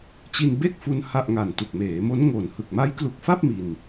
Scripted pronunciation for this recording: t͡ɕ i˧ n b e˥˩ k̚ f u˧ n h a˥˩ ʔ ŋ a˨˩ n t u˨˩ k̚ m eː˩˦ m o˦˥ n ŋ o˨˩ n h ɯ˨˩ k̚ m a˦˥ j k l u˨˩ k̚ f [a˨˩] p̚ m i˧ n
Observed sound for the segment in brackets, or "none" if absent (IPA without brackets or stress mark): a˥˩